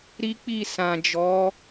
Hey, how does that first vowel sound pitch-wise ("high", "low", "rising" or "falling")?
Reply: high